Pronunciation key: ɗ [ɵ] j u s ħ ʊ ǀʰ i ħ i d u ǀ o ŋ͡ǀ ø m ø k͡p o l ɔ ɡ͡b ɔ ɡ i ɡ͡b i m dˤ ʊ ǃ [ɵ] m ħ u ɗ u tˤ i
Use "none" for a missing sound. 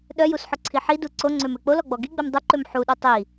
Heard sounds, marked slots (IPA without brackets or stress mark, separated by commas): œ, ø